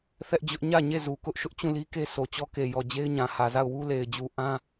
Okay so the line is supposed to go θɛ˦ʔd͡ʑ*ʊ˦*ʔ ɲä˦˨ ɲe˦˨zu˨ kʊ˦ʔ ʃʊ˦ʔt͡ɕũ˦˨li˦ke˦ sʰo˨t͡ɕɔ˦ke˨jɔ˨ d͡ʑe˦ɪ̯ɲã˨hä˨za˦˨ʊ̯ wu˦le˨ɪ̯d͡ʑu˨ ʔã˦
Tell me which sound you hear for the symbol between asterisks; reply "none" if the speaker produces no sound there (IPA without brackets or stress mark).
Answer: ʊ˦